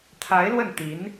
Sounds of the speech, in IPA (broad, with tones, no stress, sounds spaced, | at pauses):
t̪ʰ a˧˥ ɪ̯ l w ə˥˩ n t̪ i˧˥ n